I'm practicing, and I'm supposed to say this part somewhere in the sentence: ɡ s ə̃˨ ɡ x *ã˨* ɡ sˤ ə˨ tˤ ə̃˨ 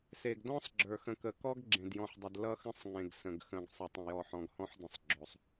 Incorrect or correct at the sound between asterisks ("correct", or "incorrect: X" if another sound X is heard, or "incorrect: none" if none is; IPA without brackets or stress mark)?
incorrect: ə̃˨